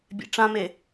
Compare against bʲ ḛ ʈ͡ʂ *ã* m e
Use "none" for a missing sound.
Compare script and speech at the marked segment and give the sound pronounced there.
ã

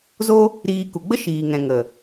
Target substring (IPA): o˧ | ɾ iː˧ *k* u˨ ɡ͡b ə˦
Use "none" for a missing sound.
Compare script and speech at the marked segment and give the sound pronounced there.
k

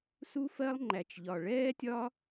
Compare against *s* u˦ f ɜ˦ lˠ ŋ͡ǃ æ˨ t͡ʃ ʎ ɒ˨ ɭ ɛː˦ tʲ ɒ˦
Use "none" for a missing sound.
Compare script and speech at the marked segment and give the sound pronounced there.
s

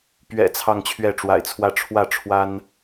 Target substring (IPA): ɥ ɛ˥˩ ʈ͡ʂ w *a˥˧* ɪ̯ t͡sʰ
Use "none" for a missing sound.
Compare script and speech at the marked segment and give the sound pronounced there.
a̰˨˩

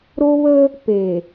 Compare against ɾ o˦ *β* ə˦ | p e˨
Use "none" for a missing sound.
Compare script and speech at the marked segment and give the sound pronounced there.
β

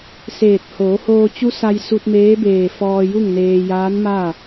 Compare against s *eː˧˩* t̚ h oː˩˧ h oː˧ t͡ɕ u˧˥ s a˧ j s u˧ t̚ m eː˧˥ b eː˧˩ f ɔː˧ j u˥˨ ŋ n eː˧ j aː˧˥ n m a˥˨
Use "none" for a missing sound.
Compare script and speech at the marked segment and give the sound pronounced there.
eː˧˩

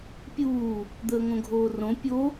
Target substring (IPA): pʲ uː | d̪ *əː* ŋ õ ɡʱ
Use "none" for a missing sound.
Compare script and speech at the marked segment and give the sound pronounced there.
əː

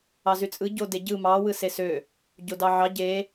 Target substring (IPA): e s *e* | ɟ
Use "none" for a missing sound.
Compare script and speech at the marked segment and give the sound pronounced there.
ø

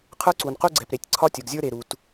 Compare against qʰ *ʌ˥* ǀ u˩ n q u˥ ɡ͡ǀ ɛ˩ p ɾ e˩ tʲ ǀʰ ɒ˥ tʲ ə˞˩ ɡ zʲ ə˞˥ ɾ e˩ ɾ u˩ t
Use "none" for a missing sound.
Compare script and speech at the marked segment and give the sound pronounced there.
ə˞˥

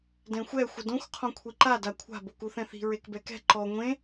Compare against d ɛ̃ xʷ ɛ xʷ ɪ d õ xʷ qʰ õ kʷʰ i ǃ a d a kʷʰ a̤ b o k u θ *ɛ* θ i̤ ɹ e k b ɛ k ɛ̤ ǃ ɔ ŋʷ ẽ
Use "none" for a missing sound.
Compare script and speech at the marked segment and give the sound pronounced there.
ɛ̃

